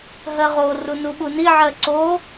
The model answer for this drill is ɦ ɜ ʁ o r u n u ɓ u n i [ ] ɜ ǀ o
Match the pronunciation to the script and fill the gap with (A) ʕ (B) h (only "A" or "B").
A